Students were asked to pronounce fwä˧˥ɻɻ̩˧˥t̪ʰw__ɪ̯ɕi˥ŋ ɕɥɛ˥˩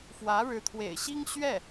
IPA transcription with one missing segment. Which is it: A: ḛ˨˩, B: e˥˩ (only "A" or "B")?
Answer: A